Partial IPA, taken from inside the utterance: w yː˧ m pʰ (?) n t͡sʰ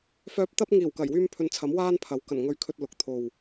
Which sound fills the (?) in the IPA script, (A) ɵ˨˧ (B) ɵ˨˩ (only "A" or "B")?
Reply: A